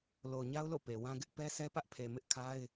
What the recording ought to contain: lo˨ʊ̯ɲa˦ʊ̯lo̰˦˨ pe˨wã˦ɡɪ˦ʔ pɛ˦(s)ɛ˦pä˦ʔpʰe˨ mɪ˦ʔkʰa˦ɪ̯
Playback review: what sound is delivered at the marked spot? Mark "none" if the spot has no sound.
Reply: s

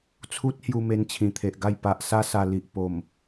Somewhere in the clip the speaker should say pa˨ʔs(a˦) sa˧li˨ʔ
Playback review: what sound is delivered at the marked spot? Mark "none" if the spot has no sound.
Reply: a˦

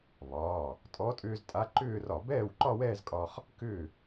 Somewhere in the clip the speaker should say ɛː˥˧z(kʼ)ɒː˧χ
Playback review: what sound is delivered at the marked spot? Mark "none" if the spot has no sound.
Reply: kʼ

